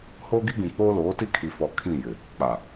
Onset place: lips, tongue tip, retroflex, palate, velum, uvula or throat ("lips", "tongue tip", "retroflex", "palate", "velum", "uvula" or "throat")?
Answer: throat